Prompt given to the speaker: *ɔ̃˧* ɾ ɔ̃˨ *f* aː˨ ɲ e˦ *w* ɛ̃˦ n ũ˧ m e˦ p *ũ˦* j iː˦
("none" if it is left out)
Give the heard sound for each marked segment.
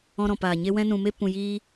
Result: ɔ̃˧, p, w, ũ˧

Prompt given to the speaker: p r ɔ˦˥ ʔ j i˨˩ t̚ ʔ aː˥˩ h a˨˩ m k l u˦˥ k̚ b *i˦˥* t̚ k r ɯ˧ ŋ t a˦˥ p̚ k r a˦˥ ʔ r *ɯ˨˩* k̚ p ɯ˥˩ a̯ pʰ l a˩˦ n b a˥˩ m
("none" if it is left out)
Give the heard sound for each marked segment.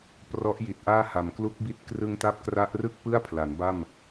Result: i˦˥, ɯ˥˩

